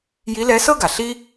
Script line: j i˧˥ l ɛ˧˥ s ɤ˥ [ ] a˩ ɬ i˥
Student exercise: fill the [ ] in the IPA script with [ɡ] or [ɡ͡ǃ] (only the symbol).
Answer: ɡ